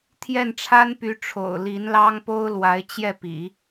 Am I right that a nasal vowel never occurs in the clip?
yes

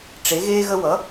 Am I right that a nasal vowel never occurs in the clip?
yes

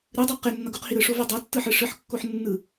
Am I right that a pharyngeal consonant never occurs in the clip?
no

